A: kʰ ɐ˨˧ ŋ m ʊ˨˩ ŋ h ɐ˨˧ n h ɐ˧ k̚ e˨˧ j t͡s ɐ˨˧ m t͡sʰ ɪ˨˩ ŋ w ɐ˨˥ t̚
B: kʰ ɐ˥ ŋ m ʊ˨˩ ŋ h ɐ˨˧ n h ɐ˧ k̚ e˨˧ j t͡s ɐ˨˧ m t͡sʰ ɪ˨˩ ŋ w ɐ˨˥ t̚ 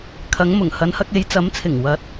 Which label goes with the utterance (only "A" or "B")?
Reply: A